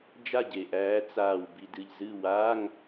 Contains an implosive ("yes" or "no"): no